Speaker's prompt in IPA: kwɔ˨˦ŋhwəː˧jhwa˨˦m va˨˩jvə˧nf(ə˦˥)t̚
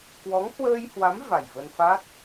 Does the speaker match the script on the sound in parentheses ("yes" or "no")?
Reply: no